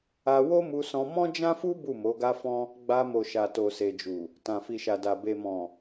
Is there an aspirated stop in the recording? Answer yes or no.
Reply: no